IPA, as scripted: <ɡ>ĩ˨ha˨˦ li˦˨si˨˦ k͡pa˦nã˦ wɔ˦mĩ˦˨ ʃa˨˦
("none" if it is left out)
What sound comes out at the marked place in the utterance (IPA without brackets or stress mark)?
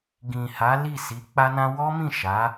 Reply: ɡ